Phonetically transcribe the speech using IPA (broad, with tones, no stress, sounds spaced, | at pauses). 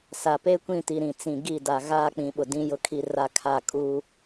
s a˨ p e˦ kʷ ĩ˦˨ t i˨ ɾ ĩ˨ t͡s ĩ˨ ɡ i˦˨ d a˨ ɣ aː˦ k͡p ĩ˨ ɓ ʊ˨ d ĩ˦ j ʊ˦ kʰ i˦ r a˦ kʰ a˦˨ kʼ u˦